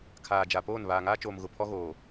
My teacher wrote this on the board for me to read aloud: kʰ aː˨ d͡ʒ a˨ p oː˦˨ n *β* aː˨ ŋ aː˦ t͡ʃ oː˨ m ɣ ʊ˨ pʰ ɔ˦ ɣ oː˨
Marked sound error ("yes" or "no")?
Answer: no